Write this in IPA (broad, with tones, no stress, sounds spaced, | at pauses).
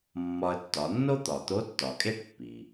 mː ɒ˧ ə̯ tː ɒ˩˧ nː o˥ t̪ ɒ˩ t̪ o˧˥ tː ɒ˩ kʼ e˥ ʈ pː i˩